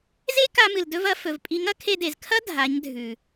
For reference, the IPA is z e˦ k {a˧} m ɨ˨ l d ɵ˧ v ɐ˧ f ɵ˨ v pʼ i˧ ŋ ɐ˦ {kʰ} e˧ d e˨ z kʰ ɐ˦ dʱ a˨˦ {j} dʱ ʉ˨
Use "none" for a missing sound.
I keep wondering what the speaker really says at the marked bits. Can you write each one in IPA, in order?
a˧, kʰ, ɲ

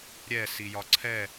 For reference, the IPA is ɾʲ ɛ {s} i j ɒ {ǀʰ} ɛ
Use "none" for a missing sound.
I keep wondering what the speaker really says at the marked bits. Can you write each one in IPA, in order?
s, ǀʰ

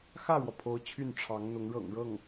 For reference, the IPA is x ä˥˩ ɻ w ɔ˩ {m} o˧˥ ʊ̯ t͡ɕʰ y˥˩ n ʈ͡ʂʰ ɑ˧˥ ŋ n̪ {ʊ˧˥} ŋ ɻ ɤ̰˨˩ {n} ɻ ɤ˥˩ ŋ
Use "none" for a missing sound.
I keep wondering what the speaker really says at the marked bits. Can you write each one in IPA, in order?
pʰ, ʊ˧˥, ŋ

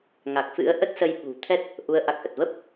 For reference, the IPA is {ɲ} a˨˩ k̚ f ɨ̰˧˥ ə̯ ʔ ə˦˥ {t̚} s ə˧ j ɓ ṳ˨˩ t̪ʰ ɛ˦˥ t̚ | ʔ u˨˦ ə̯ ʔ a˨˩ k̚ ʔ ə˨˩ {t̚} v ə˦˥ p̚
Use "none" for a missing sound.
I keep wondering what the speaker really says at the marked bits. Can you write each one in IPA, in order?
ŋ, t̚, t̚

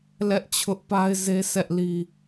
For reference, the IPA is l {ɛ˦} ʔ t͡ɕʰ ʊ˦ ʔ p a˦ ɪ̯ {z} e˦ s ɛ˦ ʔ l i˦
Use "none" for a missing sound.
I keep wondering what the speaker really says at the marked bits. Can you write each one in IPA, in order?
ɛ˦, z

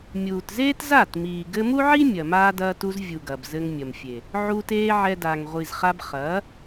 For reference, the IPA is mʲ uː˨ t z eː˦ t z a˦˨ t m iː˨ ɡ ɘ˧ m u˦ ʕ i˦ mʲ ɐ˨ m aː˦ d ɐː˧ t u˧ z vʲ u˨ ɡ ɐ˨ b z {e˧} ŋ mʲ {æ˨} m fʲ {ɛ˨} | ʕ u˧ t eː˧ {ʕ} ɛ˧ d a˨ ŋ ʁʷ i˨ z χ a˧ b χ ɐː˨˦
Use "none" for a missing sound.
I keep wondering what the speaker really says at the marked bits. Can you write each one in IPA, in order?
ɘ˧, ɐ˨, e˨, ʕ

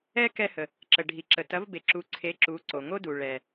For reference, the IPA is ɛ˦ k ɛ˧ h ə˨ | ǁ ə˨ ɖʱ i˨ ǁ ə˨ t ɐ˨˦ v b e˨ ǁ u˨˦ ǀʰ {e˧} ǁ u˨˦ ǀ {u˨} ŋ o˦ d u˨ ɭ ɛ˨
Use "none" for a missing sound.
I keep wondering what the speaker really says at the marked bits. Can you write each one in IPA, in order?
e˨˦, o˨

